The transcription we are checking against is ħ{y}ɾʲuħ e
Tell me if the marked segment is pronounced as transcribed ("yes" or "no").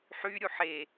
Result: yes